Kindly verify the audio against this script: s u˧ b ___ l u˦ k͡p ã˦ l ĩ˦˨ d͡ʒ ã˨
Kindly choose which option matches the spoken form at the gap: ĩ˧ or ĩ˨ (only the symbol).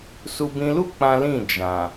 ĩ˧